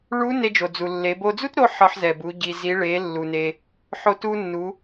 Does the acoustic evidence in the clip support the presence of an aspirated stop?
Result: no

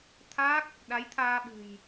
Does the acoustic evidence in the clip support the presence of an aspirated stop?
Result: yes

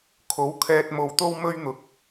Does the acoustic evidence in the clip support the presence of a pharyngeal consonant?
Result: no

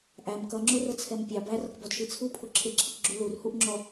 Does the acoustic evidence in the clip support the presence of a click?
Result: yes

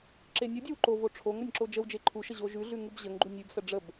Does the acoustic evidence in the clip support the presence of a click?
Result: yes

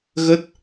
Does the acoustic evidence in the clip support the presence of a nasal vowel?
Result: no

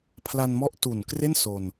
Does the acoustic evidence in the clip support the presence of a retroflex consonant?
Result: no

